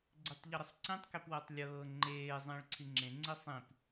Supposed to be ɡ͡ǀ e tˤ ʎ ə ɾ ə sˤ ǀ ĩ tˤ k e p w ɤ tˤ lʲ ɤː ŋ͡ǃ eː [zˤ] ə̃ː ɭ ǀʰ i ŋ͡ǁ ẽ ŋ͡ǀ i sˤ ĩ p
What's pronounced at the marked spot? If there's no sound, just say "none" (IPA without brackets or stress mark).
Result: zˤ